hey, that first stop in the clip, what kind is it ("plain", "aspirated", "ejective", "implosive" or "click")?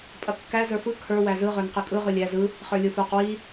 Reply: ejective